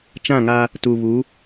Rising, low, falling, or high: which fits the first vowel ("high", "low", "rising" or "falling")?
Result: falling